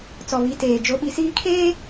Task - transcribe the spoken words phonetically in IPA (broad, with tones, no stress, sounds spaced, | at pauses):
t͡s ɔ˨ β i˨˦ t eː˨ d͡ʒ o˨˦ ɓ i˨ s iː˦ kʰ eː˦